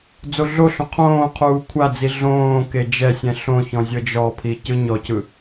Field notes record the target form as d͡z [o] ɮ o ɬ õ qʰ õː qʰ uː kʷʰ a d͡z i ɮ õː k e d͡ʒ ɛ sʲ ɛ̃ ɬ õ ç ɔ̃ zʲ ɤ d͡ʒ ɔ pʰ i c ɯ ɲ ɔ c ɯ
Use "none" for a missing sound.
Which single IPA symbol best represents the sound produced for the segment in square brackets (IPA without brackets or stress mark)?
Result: o